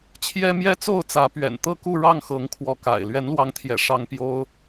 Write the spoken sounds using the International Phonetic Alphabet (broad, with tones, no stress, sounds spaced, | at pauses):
t͡ɕʰ j ɛ˦ m j ɛ˦ t͡s o˥˨ ʊ̯ t͡s ä˨˦ p ɥ ɛ̰˨˩ n t̪ ɤ˥˨ k u˥˨ ɻ ɑ˥˨ ŋ x ɤ˨˦ ŋ kʰ w ɔ˨˦ k a̰˨˩ ɪ̯ l ɥ ɛ˨˦ n l w ɑ˨˦ ŋ t̪ʰ j ɛ̰˨˩ ʂ ɑ˦ ŋ p j o˦ ʊ̯